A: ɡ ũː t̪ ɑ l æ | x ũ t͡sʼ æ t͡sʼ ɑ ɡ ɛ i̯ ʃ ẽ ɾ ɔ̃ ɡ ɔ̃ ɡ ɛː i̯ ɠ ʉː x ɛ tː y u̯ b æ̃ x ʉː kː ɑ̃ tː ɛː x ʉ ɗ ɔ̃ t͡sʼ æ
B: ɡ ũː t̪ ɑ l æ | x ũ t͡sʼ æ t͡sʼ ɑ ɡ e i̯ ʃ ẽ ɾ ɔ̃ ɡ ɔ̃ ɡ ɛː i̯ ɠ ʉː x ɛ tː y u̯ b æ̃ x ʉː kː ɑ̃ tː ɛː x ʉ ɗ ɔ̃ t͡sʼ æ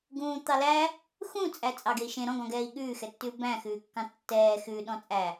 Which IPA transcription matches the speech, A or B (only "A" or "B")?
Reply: B